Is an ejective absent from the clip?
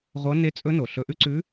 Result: no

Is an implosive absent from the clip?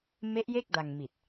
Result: yes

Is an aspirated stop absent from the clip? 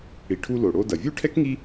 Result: no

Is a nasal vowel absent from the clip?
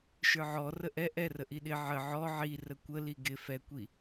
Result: yes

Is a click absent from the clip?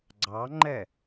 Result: no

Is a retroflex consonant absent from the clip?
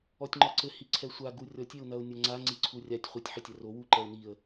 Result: yes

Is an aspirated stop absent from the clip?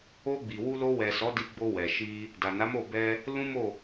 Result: yes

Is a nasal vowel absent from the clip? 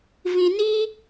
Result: no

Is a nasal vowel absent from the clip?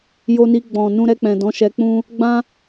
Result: no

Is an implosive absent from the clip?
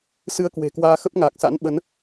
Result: no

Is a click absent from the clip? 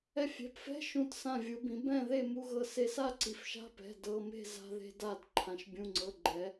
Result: no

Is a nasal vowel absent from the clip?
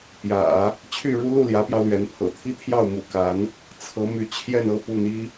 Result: yes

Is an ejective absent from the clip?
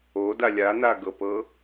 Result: yes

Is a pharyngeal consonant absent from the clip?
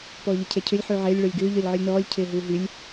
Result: no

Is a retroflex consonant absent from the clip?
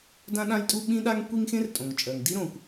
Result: yes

